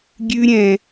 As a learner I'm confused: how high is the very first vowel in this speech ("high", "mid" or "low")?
high